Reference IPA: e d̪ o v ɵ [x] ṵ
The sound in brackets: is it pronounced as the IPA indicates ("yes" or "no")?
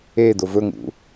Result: no